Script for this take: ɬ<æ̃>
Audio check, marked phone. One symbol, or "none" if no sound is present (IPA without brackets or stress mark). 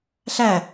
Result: æ